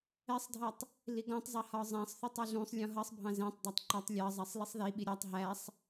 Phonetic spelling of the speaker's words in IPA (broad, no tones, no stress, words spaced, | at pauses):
ɛsˤdʱʌtˤ | liɡɔ̃tˤzˤʌ hɒzˤæ̃sˤθutˤ ɒɮũsˤlʲɔ̃ ɦʌsˤbʱɑ̃ zæ̃tˤdˤɑtˤ ǃɒtˤ lʲɑzˤæsˤ lisˤðiɓi ɾʲɑtˤ ɦæsˤ